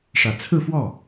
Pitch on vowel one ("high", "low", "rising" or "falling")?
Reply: low